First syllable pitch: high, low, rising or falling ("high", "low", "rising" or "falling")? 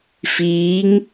rising